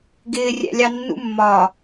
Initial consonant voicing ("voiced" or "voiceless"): voiced